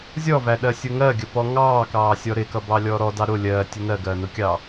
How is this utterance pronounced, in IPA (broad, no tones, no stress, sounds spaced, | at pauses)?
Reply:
zʲ ɔ v æ ɗ ɜ sʲ ʊ ŋ ɜ ɡʲ ə p ɔ ŋ ɑː k ɑː sʲ ɔ ɾ ɪ k ʌ b ɑ lʲ ɔ ɾ ɔ d ɑ ɾ ʊ lʲ ɜː tʲ ʊ n ɜ ɡ ɜː n ʊ kʲ ɑː